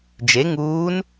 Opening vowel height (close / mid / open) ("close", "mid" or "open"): mid